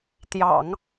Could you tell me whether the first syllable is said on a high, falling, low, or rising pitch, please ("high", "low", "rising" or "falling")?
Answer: low